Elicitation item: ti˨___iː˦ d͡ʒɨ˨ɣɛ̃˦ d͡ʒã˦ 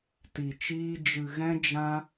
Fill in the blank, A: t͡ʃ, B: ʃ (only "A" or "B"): A